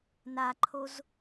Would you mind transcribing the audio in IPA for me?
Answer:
n a ǃʰ o z

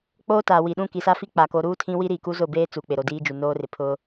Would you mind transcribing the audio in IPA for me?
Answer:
k͡p oː˦ t aː˨ w i˨ ɗ ũ˦˨ k i˨ s a˦ f i˦ k͡p a˨ k o˨˦ ɾ uː˦ tʰ ĩ˦ w i˦ ɾ i˨ k u˦ z ʊ˦˨ b eː˦ t͡s u˨ k͡p ɪ˨ ɾ o˨ d iː˦ d͡ʒ u˨ n oː˦ r ɪ˨ pʰ ʊ˦

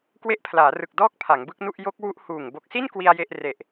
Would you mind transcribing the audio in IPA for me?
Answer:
k w e˦˥ ʔ pʰ l aː˩˦ r ɯ˨˩ k̚ d ɔː˥˩ k̚ pʰ a˩˦ ŋ b ɯ˦˥ k̚ n u˥˩ ʔ j o˦˥ k̚ w u˦˥ ʔ h uː˨˩ ŋ b o˨˩ k̚ s i˥˩ n k w i˧ a̯ j e˥˩ ʔ r e˨˩ ʔ

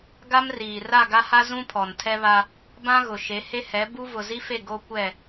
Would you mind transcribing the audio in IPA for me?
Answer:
ɡ a˦ m r iː˨ r a˦˨ ɡ a˦ h a˦ z ũ˦ pʰ ɔ˨ n tʰ ɛ˦ β a˦ | b ã˦ ɣ ʊ˨ ʃ e˨˦ h e˦ h ɛ˨˦ b u˦ v ʊ˨ z i˦ f e˦˨ ɡ o˦ kʷ ɛ˦˨

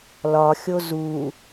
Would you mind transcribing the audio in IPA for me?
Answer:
l ɒ xʲ o z u

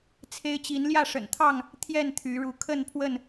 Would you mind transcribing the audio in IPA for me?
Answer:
t͡sʰ e˦ ɪ̯ t͡ɕ i˨˦ n l j ä˥˨ ʂ ə̰˨˩ n t̪ʰ ɑ˥˨ ŋ | t̪ʰ j ɛ˥˨ n t̪ʰ y˨˦ ɻ u˨˦ kʰ ə˥˨ n pʰ w ə˥˨ n

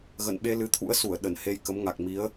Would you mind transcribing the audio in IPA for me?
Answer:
ɣ ə̰˧˨ n ɓ e˧ l ɨ˨˦ t̪ʰ ṵ˧˥ ə̯ s u˧˩ ə̯ ɗ ə˧˩ n h e˧ j k ə˨˦ m ŋ a˨˩ k̚ m i˨˦ ə̯

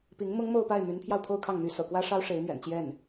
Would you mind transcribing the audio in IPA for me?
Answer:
p i˧˥ ŋ m ʊ˥ ŋ m o˥˧ ʊ̯ p a˥˩ ɪ̯ m y˧˥ n pʰ j ɑ˧ ʊ̯ pʰ o˥˧ ʊ̯ kʰ ɑ˥˩ ŋ m y˧˥ s ɤ̰˨˩ k w ä˥ ʂ ɑ˥ ʊ̯ ʂ e˧˥ ɪ̯ m ɥ ɛ̰˨˩ n t͡ɕ j ɛ˥˩ n

